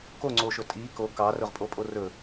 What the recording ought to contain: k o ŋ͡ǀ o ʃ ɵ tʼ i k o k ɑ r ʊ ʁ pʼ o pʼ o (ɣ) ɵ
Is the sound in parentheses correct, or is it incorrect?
incorrect